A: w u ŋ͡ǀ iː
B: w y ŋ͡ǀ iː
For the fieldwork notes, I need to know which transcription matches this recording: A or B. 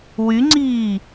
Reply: B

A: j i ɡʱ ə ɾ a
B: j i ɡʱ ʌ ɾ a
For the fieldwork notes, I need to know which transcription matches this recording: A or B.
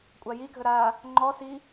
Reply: A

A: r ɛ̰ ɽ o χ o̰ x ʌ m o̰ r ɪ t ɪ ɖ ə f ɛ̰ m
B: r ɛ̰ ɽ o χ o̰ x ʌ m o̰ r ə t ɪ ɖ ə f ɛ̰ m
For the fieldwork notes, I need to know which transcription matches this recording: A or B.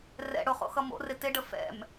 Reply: A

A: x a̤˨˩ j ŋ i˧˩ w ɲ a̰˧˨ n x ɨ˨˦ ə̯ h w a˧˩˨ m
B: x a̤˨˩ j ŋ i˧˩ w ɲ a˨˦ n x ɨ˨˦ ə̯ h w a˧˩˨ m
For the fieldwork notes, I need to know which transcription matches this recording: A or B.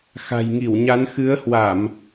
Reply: B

